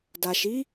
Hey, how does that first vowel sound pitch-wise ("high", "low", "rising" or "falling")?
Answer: low